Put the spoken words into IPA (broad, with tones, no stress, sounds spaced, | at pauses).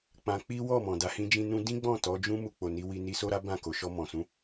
k͡p ã˧ k͡p i˦ w ɔ˦˨ m ɔ̃˨ d a˧ h ĩ˦ d͡ʒ ĩ˦ n ũ˦ d ĩ˦ ɡ͡b ɔ̃˦˨ t ɔ˨˦ d͡ʒ ũ˦ m u˦˨ k͡p o˨ n i˨˦ w i˧ n i˧ s o˦ ɾ a˦ b ã˦˨ k o˨ ʃ ɔ˧ m ɔ̃˨ s ũ˨˦